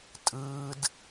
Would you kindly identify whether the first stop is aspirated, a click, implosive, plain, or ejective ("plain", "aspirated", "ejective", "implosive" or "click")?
ejective